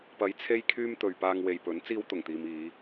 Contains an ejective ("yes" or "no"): no